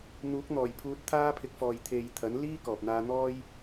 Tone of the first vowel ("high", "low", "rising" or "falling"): rising